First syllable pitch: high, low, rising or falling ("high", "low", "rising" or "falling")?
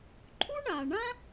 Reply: high